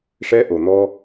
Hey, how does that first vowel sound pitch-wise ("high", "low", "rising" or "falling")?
high